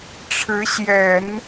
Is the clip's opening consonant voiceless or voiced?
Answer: voiceless